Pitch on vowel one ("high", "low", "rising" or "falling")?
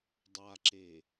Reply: low